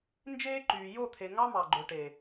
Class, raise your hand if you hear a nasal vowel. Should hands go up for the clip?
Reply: no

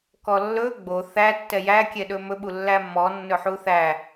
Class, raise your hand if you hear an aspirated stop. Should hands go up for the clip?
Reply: no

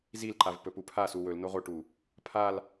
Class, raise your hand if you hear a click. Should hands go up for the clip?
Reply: yes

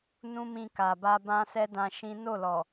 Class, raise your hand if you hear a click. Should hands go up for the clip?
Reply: no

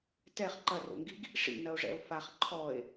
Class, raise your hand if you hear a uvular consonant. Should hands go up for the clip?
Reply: yes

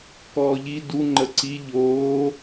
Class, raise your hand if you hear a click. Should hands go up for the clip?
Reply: yes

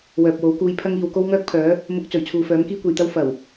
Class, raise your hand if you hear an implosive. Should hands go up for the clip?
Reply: no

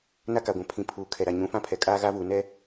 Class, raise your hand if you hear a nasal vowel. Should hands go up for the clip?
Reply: yes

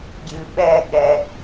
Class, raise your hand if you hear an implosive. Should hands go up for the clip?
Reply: yes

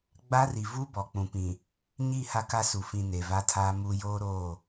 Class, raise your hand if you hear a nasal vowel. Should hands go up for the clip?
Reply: yes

